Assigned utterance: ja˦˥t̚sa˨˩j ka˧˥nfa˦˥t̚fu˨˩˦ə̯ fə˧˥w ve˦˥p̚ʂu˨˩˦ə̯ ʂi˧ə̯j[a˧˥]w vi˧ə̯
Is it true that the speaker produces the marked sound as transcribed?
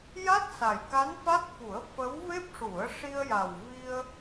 no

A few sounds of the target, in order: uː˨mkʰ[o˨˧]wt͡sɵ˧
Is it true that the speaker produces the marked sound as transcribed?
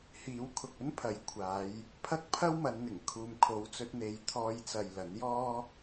yes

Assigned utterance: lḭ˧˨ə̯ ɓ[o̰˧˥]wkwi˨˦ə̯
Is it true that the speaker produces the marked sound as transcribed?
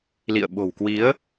no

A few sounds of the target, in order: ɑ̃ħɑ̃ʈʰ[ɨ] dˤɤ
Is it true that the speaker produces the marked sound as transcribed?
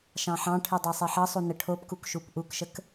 yes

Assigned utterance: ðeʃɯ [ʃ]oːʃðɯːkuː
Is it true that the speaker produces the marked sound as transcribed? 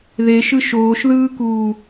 yes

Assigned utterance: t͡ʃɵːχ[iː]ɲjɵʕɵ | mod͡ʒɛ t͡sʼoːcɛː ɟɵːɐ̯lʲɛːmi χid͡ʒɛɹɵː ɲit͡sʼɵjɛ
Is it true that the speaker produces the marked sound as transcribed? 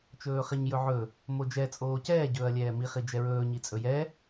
no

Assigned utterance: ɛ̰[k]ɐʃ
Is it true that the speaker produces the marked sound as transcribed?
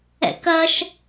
yes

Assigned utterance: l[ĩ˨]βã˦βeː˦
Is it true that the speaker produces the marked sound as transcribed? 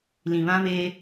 yes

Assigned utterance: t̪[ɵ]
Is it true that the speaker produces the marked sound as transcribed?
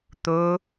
yes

